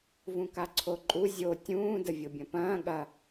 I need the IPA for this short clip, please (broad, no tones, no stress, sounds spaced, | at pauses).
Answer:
v ũ k a ǀʰ o ǃʼ u zʲ o tʲ ũː d ə vʲ o bʲ ɐ̃ p ɐ̃ː ɠ ɐ